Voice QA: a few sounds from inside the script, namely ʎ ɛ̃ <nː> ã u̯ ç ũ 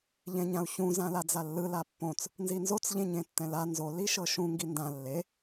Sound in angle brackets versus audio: incorrect: ɲ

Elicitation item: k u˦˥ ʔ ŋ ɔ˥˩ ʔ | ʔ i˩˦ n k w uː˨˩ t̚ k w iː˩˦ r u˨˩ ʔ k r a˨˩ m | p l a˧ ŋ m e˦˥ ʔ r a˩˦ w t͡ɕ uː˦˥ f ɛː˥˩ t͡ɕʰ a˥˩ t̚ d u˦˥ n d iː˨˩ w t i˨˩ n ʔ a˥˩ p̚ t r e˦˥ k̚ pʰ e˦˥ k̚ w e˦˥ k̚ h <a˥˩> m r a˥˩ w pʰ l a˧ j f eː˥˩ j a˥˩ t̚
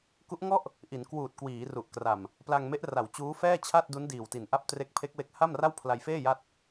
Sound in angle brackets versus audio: correct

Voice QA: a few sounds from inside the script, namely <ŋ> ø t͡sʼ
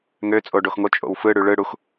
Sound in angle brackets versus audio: correct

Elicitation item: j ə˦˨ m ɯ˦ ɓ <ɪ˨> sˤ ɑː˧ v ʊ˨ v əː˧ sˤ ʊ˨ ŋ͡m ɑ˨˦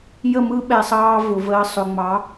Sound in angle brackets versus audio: incorrect: ɛ˨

